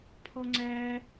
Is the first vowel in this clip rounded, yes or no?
yes